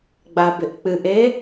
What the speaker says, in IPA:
ɡ͡b a b ɪ ʔ k͡p ɨ ʔ e

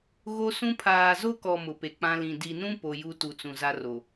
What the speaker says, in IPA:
ɣ o˦ s ũ˦ pʰ aː˨ z o˦ k ɔ˨ m ʊ˨ p e˨ k͡p ã˦ l ĩ˨ d i˨ n ũ˦ p o˨ j u˦ t u˨ t͡s ũ˨ z a˦ r o˨

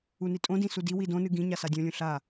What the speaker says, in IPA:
u n i tʼ õ d ĩ s u d i w i d õ n ɨ ɡ ĩ ɲ a s a dʲ õ lʲ ũ ɬ a

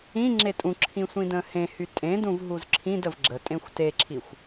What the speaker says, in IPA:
ĩ ŋ͡ǁ e tʼ ũ ǁʰ ĩ sʷ ĩ d ə̃ː h ẽ h y tʼ ẽ d ũ v ɦ u z ǁʰ ĩ d ə v ɡ͡ǁ ə tʼ ẽ xʷ t e ǁʰ i xʷ

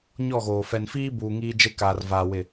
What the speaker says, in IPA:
ɲ ɔ˦˨ ɣ oː˨ f ɛ˨ n f iː˦ b uː˨ ŋ iː˦ d͡ʒ e˦ k aː˨ r v aː˨ w ɪ˦˨

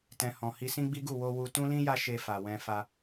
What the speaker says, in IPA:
t ɛ̃˨ h ɔ̃˨ h i˧ s ĩ˦ ɡ͡b i˦ ɡ u˦˨ w o˧ w u˧ t ũ˦ l ĩ˦ j a˦ ʃ e˧ f a˨ w ɛ̃˧ f a˧

